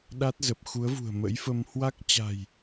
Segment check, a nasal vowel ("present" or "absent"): absent